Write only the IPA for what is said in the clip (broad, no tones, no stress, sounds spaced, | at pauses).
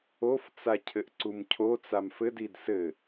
o f t͡s a cʰ ɘ ʔ ǀ u m cʰ o t͡s a m f ɘ d i d s ɘ